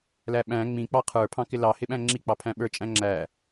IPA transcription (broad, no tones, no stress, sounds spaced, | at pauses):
l æ ɓ æ̃ ŋ͡m ĩ k͡p ɑ qʰ ə˞ pʰ ɑ̃ k ɪ l ɑ h ɪ ɓ æ̃ ŋ͡ǁ i k͡p ɑ pʰ æ̃ ɓ ə˞ t͡ʃʼ æ̃ ŋ͡ǁ æ